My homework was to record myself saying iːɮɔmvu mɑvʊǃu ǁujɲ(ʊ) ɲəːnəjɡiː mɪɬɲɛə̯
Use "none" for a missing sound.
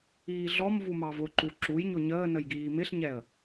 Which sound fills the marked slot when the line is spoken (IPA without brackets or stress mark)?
ʊ